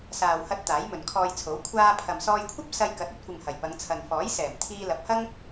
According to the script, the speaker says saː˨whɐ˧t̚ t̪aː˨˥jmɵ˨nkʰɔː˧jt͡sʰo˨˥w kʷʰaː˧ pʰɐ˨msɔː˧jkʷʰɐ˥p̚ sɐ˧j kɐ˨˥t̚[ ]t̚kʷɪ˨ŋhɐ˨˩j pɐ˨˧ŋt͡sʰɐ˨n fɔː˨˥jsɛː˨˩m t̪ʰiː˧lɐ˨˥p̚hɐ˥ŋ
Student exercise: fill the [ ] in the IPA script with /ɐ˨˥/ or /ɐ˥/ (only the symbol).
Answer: ɐ˥